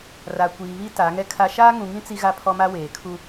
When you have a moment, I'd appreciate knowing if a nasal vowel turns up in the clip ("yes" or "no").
yes